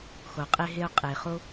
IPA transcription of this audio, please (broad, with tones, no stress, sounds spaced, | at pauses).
x o˩ qʼ e˧ ɦ e˧ ʊ̯ qʼ e˩ χ o˧